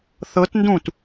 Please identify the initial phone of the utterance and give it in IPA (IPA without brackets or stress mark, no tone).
θ